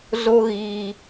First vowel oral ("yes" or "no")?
yes